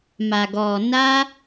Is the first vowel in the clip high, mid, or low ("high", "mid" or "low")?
low